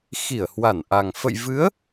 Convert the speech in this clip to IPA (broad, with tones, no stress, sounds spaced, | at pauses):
x i˧˩ ə̯ h w a˧˩ n ʔ a˨˩ ŋ f ə̰˧˨ j v ɨ˨˦ ə̯